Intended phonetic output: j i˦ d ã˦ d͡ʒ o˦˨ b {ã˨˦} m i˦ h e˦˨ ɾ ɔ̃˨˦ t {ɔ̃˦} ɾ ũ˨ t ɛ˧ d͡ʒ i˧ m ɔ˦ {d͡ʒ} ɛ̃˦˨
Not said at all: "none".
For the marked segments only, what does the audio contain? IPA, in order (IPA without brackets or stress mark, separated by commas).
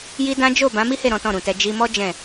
ã˨˦, ɔ̃˦˨, d͡ʒ